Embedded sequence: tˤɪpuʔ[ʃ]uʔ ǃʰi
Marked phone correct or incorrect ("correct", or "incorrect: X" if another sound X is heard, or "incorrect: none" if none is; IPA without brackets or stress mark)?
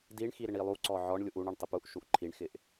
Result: correct